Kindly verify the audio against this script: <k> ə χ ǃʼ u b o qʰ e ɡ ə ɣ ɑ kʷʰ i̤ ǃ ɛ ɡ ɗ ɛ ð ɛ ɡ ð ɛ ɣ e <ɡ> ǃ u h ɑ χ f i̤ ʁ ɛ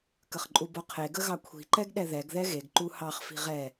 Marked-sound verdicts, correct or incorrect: correct, correct

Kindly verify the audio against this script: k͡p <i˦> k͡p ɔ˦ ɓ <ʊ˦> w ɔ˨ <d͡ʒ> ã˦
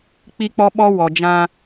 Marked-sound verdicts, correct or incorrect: correct, incorrect: ɔ˦, correct

